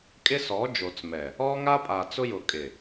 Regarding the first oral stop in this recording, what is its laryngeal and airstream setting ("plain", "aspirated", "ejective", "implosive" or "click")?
ejective